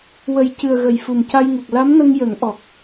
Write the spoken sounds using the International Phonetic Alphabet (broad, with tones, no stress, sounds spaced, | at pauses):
w ə˨˩ j c ɨ˨˩ ə̯ ɣ ə˨˩ j f u˨˩ m c a˧ j ŋ u˨˩ k̚ l a˧˥ m n ə˧ ŋ j ə˨˩˦ ŋ ʔ ɔ˨˩ k̚